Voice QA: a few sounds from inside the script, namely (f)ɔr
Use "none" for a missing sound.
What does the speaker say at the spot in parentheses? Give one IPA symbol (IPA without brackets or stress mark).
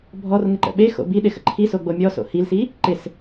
bʱ